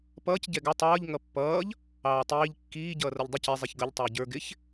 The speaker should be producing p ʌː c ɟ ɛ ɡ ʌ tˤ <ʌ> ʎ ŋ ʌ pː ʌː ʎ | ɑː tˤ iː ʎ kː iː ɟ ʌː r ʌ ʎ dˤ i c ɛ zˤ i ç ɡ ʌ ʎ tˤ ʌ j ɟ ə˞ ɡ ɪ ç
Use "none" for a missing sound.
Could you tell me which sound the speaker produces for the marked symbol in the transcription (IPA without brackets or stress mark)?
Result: ʌː